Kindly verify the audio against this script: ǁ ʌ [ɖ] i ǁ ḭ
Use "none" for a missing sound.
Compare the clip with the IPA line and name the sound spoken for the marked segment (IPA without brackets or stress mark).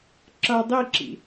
dˤ